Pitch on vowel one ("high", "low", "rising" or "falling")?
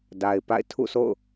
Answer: low